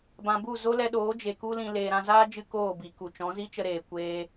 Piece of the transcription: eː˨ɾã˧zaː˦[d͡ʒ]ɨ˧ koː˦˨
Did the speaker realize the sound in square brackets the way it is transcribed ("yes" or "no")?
yes